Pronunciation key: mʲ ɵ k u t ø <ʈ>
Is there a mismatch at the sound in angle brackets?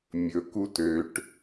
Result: no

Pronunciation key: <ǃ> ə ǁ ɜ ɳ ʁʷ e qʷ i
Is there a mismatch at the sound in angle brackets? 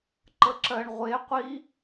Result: no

